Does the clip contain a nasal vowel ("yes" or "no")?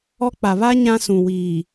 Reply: yes